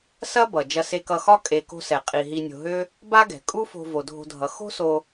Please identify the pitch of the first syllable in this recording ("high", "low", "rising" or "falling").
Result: high